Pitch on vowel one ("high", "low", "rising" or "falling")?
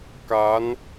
rising